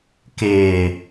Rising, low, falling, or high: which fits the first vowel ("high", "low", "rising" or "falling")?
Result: low